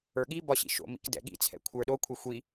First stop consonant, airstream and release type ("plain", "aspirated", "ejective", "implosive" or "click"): implosive